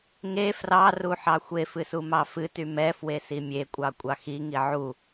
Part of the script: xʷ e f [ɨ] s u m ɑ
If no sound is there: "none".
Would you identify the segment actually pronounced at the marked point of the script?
ɨ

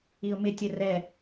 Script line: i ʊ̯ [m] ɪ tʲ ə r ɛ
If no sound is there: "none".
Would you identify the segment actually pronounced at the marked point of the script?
m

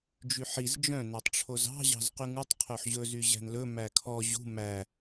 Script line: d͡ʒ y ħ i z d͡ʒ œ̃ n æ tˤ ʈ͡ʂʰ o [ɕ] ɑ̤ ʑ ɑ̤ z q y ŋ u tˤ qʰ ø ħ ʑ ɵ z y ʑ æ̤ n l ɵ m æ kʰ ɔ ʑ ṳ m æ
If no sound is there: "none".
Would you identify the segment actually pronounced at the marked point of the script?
z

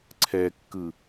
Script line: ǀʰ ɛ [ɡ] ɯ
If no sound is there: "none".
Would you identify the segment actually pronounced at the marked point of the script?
kː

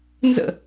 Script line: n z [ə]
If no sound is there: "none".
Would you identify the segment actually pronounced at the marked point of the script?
ə̰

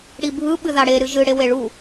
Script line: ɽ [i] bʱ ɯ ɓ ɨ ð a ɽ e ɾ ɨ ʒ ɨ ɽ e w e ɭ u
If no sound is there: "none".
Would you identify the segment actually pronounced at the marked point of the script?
i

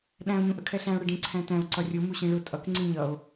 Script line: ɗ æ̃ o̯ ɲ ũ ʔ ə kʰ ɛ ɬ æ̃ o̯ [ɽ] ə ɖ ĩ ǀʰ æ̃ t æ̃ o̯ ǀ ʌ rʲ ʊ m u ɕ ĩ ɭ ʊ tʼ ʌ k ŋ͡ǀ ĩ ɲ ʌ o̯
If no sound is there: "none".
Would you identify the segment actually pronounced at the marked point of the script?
ɽ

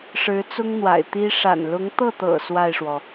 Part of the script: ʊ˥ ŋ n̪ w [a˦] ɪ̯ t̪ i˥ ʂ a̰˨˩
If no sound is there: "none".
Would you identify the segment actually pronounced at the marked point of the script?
a̰˨˩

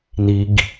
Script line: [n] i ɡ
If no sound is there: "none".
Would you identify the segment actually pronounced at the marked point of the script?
n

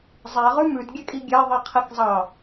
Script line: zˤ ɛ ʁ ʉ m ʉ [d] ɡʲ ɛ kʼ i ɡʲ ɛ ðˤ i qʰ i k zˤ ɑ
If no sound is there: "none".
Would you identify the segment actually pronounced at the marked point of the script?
d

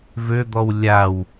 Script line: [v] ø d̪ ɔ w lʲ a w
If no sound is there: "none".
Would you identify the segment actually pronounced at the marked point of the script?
v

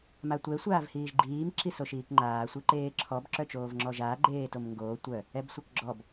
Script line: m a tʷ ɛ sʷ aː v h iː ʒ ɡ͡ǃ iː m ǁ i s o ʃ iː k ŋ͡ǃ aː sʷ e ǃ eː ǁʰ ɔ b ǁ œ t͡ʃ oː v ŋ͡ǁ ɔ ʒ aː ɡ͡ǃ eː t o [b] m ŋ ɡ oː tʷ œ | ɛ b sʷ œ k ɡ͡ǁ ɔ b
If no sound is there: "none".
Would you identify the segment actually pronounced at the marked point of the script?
none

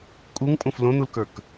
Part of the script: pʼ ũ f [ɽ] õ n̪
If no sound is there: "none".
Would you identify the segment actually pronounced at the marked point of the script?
l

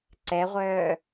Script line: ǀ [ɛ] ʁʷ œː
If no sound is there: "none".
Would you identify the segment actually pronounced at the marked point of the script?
ɛ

